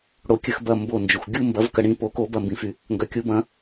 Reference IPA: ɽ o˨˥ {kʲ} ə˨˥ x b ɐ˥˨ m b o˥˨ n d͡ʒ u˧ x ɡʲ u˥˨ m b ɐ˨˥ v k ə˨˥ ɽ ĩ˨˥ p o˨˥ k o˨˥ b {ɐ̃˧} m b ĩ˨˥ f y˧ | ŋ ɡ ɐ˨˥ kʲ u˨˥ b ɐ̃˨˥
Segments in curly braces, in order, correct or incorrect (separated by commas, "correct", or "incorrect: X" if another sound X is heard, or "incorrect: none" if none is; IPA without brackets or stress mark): correct, incorrect: ɐ˧